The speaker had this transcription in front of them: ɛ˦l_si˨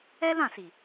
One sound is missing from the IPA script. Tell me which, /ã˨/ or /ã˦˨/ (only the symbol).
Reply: ã˦˨